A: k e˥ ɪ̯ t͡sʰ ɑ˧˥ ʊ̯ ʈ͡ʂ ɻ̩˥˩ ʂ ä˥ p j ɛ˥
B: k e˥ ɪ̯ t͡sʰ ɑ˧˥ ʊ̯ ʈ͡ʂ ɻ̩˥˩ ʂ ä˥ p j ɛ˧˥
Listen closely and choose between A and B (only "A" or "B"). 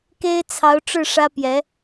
B